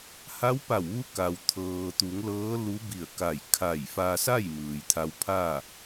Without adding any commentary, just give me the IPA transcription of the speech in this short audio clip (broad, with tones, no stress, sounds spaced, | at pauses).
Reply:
h a˧˥ w p a˧˩ w ʋ u˧˥ k a˩ w t̪ʰ ɤː˩ t̪ u˩˧ ŋ l ɤː˧˥ l u˧˥ b i˧˩ ə̯ k a˧˩ j kʰ a˧˩ j f a˧ s a˥˨ j m ɯː˩ j t̪ʰ a˧ w pʰ a˥˨